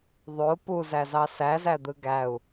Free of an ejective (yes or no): yes